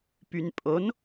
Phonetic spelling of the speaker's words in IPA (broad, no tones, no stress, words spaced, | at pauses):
pynpʼon